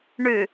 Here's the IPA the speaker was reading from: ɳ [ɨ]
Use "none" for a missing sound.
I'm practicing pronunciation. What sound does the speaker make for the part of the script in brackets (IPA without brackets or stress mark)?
ʉ